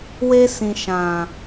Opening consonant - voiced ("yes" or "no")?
yes